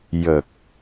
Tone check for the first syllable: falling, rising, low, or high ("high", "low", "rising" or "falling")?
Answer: low